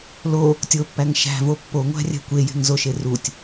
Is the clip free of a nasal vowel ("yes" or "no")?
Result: yes